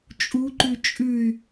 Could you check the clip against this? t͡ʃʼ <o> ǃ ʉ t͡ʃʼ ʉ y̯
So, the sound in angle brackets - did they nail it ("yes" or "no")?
no